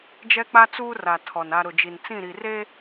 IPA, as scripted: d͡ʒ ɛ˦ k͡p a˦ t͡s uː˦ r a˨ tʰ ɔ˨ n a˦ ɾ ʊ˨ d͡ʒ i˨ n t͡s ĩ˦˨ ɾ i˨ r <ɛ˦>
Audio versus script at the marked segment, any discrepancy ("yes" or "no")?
yes